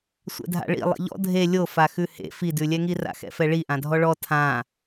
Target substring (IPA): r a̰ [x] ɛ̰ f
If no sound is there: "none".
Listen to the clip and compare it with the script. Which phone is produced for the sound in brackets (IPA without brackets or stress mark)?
x